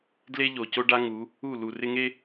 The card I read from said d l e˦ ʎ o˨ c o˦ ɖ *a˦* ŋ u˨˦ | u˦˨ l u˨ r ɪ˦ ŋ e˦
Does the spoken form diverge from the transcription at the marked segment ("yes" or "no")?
no